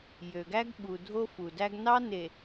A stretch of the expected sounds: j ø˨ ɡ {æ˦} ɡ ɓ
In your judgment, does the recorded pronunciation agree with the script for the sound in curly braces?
yes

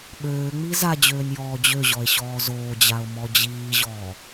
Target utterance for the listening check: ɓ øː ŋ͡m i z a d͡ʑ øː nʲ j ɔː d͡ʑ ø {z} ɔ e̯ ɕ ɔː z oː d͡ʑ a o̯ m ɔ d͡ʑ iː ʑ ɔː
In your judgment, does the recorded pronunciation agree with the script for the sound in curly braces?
no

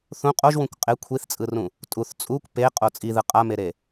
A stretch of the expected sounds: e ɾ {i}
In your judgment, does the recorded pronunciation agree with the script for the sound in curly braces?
no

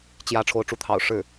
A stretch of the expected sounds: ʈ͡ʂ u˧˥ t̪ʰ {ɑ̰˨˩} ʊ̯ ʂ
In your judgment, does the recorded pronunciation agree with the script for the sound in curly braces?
yes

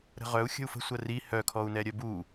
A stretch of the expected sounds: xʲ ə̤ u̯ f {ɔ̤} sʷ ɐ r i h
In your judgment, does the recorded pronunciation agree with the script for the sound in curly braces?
no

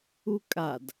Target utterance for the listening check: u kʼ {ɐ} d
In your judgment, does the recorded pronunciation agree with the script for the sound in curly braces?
no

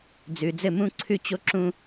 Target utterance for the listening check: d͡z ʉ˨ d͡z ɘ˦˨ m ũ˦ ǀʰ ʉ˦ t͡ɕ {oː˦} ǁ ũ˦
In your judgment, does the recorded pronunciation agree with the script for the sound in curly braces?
no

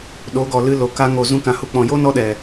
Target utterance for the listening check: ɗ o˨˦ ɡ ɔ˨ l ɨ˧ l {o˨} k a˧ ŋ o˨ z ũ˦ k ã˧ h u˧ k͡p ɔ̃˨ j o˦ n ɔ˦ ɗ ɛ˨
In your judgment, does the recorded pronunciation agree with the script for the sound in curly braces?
yes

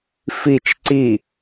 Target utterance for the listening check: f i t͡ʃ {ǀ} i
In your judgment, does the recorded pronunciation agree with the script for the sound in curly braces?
yes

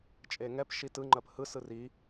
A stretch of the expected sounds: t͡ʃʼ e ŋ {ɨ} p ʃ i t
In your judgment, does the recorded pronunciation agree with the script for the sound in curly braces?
no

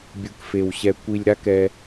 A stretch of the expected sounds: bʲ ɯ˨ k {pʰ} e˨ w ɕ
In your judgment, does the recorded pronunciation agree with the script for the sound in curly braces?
no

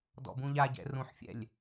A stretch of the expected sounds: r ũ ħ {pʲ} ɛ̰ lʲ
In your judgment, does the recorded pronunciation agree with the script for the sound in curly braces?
no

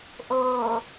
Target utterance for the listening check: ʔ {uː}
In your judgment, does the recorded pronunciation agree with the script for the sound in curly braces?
no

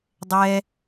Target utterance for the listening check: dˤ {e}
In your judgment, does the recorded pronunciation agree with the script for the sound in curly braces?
no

